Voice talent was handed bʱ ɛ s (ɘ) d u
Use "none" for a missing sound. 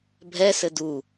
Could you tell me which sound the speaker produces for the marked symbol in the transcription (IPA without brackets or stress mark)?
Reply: ɘ